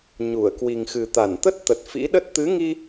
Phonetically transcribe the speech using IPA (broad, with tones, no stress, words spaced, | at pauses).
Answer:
ɲu˧˩ə̯ kwi˨˩ŋxɨ˨˩t̪a˧˩n t̪ə˦˥t̚t̪ə˨˩t̚ fḭ˧˥ɗə˦˥t̚ t̪ɨ˨˦ŋi˧